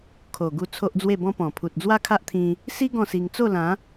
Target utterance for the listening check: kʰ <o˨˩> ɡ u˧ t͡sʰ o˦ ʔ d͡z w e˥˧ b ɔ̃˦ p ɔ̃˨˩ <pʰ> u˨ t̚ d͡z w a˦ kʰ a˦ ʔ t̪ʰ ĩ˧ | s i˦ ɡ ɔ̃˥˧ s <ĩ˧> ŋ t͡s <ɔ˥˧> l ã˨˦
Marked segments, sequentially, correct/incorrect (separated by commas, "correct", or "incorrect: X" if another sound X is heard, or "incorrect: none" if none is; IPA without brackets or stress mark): correct, correct, incorrect: i˧, incorrect: o˥˧